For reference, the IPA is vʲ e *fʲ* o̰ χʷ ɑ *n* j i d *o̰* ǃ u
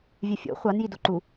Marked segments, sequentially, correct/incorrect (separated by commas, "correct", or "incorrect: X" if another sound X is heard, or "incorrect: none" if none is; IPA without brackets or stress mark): correct, correct, incorrect: o